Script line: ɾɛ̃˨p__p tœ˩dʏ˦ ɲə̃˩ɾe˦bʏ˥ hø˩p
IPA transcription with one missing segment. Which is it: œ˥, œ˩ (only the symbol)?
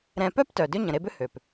œ˥